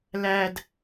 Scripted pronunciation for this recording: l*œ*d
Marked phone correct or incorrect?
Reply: incorrect